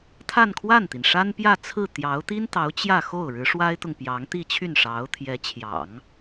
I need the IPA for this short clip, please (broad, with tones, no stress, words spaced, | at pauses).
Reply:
t̪ʰa˥˧nkʰwa˥˩nt̪i˩n ʂa˥npjä˥˧t͡sʰɹ̩˥˩ t̪jɑ˧˥ʊ̯t̪i˥nt̪ɑ˧˥ʊ̯ t͡ɕjä˥˧xo˥˩ʊ̯ ɻɻ̩˧˥ʂwa˥ɪ̯t̪ʊ˨ŋpjɑ˧˥ŋ t̪i˥˧t͡ɕʰy˥˩n ʂɑ˧˥ʊ̯t̪ʰjɛ˧˥t͡ɕʰjɑ̰˨˩˦ŋ